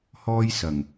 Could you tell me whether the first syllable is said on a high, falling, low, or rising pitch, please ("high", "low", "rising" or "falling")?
high